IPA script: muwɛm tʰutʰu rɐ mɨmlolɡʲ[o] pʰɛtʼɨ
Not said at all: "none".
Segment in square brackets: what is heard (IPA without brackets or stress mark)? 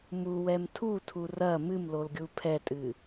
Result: u